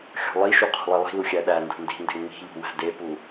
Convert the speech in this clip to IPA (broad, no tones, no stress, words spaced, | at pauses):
xʲo̤lˠiʃu qʰṳlˠilˠi̤lu xʲæɗændṳ ndi̤nde ŋ͡mi̤ʎṳ wæ̤depu